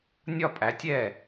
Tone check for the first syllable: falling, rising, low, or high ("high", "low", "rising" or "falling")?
falling